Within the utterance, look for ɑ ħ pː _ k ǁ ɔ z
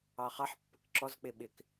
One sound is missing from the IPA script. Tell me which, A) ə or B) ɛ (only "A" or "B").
A